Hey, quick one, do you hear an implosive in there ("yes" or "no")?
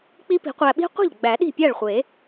yes